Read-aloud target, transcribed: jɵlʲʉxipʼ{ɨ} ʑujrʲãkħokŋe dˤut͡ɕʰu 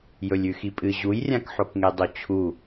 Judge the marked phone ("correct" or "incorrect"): correct